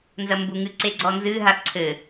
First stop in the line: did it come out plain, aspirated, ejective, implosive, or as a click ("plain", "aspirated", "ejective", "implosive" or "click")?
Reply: plain